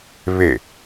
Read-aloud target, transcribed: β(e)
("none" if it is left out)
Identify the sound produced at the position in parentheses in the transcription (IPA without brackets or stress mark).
e